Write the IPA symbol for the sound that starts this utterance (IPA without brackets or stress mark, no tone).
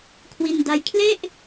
kʰ